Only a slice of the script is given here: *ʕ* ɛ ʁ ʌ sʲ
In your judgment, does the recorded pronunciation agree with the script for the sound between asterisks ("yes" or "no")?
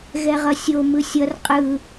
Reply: no